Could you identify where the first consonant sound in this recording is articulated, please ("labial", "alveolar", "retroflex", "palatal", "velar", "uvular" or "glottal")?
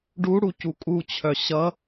retroflex